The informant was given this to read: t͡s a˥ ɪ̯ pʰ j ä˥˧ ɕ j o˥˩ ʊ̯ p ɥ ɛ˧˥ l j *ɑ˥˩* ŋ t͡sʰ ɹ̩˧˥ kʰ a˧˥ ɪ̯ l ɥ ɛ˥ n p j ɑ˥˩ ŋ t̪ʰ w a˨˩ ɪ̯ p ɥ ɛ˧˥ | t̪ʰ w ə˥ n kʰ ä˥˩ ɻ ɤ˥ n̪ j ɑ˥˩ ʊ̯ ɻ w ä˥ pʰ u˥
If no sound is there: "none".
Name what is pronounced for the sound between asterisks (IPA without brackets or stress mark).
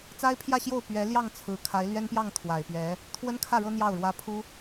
ɑ˥˩